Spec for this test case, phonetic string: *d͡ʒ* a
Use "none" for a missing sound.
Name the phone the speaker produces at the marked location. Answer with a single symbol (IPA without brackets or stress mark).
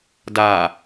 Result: d